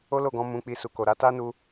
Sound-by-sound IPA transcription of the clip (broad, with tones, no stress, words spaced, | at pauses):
o˦lo˦˨ɡɔ̃˧ mũ˨k͡pi˨ su˨ko˨ɾa˧ ta˦nu˧